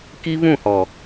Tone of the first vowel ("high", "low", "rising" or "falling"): high